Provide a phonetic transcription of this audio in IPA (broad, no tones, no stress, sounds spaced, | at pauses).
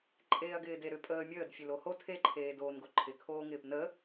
ǃʼ eː ɐ̯ ɡ ɪː d e ɾ ʏ pʼ əː mʲ əː d fʲ e l o h o tʰ e ǃʰ eː d oː n ɡ o ǃʰ ɪ kʰ oː ŋ ɪː p n ə